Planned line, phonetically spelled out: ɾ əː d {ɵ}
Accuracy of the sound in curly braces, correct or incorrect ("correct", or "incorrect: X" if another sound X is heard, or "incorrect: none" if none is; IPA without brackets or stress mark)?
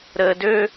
incorrect: ø